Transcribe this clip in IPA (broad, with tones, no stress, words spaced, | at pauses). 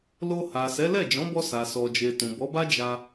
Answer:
lo˧ha˨sɛ˨˦ lɛ˦˨d͡ʒɔ̃˨˦bɔ˧sa˨ sɔ˨d͡ʒe˨ tũ˨bɔ˨˦ba˦ d͡ʒa˧